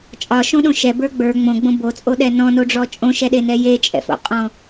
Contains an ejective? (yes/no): yes